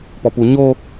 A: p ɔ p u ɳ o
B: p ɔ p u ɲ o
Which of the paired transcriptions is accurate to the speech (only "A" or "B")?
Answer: B